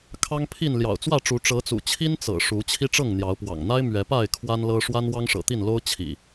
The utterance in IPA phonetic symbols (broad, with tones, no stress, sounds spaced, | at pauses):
kʰ ɑ˦ ŋ pʰ i˥˨ n l j ɑ̰˨˩ ʊ̯ t͡s w ä˥˨ ʈ͡ʂ u˨˦ ʈ͡ʂ ɤ˨˦ t͡s ṵ˨˩ t͡ɕʰ i˦ n t͡s ɤ̰˨˩ ʂ u˨˦ t͡ɕʰ i˦ ʈ͡ʂ ɤ˥˨ ŋ n̪ j ɑ˨˦ ʊ̯ p w ɑ̰˨˩ ŋ n̪ a˦ ɪ̯ m ɥ ɛ˨˦ p a˥˨ ɪ̯ kʰ w a˦ n l ɤ˦ ʂ w a˦ n w ɑ˦ ŋ ʂ ɤ̰˨˩ t̪ i˥˨ n l o˦ ʊ̯ t͡ɕʰ ḭ˨˩